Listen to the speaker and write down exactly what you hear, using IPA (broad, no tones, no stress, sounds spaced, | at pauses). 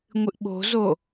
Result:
ŋʷ ɨ ʔ ɓ o̤ z o